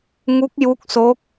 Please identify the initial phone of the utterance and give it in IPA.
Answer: ŋ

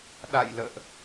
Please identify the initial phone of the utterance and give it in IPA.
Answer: ɗ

